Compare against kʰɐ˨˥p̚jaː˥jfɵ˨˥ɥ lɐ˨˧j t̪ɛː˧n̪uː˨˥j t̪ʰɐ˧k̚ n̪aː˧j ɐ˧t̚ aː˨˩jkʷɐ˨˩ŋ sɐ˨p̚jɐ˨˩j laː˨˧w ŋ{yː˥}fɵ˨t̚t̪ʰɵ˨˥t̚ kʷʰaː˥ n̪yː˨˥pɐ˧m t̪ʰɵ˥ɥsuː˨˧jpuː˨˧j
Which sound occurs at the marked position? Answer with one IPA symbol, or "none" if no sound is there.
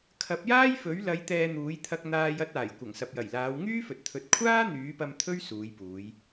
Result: yː˥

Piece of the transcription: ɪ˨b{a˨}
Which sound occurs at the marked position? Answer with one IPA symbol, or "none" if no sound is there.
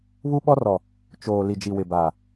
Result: aː˨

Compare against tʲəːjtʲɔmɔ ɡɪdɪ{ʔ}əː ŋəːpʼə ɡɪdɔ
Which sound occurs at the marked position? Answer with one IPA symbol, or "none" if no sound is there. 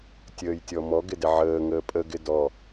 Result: ʕ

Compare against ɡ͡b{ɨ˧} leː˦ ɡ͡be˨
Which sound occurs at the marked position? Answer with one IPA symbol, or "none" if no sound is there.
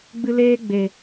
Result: ɨ˧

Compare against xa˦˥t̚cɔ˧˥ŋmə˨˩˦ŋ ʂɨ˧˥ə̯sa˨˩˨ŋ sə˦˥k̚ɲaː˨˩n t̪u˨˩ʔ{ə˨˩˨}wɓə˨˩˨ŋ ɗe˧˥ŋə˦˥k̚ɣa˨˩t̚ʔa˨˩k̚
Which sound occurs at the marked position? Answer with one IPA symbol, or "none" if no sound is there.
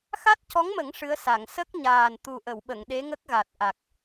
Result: ə˨˩˨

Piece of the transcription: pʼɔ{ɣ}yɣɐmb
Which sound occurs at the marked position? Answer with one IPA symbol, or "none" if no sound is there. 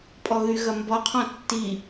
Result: ɣ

